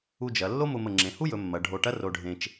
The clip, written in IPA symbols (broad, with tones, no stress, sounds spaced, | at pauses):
u˧ d͡ʒ ɐ˩˧ lː o˥ m ʊ˧ m ə˧˩ ŋ͡ǁ ẽ˩˧ h u˥ j ɵ˩˧ mː ɐ˩˧ ɖʱ o˧˩ ʈ ɐ˥ r o˧ ɖʱ ẽ˧ t͡ʃ